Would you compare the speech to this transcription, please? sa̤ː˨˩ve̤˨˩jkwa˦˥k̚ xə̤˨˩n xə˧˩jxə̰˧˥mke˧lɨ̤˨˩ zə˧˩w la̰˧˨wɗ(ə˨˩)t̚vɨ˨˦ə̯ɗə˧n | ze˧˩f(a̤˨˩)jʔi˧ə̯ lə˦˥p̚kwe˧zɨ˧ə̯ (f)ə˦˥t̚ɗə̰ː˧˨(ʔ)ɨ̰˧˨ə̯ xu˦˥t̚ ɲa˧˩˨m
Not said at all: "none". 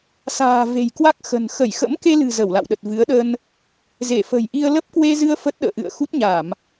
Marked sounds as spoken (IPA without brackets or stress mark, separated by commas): ə˨˩, ə̤˨˩, f, ʔ